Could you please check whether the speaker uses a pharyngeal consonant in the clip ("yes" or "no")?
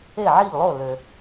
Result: yes